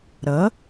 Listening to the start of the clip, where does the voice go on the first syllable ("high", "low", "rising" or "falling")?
rising